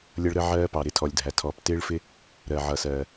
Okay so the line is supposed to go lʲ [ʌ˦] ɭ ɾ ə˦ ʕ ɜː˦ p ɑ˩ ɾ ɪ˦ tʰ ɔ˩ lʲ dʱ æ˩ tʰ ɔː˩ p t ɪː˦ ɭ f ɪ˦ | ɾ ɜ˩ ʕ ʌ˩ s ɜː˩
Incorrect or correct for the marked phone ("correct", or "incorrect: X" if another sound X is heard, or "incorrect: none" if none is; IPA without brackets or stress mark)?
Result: correct